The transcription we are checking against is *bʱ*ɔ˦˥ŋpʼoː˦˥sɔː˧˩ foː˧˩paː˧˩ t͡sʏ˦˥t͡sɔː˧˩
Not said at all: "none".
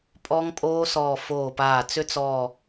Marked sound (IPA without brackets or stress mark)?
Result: pʼ